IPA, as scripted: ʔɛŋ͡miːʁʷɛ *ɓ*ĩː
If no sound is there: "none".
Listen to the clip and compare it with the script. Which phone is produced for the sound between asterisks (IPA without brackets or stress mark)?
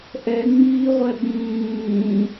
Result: ɓ